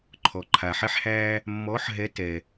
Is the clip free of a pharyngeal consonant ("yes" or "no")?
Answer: no